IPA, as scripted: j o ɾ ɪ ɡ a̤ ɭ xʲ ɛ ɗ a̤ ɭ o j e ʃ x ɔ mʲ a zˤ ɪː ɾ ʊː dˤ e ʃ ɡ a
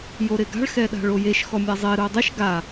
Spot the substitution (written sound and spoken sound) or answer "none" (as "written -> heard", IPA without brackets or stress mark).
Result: xʲ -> x